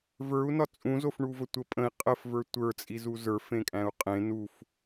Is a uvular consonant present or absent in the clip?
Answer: present